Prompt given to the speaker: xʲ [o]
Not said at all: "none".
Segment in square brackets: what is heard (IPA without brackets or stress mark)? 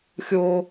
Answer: o